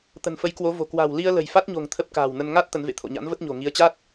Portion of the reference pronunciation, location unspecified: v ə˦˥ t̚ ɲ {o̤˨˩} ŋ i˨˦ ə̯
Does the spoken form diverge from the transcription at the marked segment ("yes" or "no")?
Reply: no